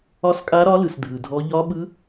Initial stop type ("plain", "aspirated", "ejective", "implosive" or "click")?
ejective